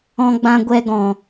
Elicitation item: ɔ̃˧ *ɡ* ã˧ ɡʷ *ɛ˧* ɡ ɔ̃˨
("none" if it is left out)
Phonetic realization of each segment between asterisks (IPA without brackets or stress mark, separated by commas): ɡ͡b, ɛ˧